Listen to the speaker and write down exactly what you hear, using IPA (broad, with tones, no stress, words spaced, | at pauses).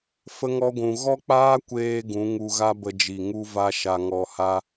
fə˧ŋɔ˧ɡʷũ˨ ɣɔ˦k͡paː˦kʷeː˧ ɡũ˨˦ ŋu˧ɣa˦bə˧d͡ʒi˨ ŋu˦va˦ ʃa˧ŋɔ˧ha˦